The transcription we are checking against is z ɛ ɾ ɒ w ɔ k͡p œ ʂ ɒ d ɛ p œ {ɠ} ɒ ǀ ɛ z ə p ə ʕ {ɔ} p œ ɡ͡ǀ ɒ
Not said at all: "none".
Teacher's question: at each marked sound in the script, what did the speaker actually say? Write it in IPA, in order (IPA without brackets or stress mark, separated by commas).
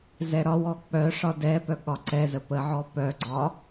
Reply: ɠ, ɔ